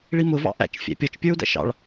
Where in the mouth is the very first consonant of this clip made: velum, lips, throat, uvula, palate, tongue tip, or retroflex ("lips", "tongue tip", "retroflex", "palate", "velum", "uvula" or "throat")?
retroflex